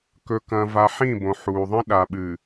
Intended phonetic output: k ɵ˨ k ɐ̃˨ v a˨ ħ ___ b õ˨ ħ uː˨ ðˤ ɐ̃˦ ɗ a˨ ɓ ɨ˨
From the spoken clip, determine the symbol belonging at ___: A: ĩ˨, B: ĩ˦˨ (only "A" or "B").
B